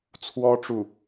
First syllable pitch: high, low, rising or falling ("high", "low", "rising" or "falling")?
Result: high